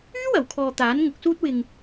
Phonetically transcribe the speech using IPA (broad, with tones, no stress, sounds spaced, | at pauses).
yː˥ w ɐ˨˩ w kʰ ɔː˨ t̪ aː˨˥ n ŋ ʊ˨˥ k̚ s uː˥ t̚ w ɪ˧ ŋ